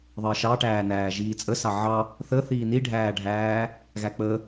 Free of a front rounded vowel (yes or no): yes